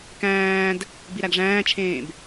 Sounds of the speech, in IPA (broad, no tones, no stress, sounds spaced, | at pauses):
k æ̃ː d | b i ɾ æ ɡ ʐ æ̃ː t͡ʃʰ ẽː b